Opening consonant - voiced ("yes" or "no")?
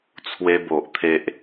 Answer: no